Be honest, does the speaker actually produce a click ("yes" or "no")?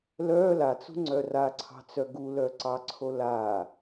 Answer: yes